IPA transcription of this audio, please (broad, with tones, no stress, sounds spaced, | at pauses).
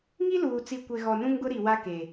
ŋ i˦ l uː˨ t͡s i˨ kʷ e˨ ɣ ɔ˨ n ũ˦ ŋ ɡ ʊ˦ ɾ i˨ w a˦ k e˨